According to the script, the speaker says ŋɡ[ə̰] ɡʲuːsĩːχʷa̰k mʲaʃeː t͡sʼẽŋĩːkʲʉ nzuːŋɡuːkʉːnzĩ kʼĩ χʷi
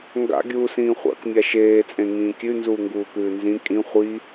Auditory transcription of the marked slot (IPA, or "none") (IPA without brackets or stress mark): a̰